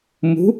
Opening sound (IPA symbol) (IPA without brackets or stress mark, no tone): m